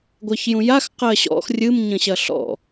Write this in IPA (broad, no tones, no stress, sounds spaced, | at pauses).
ɡʷ ɜ ç j ũ j a x q ɜ ɕ ɔ̰ x rʲ ɨ m ɲ ə̃ ɕ ɐ ɬ ɔ̰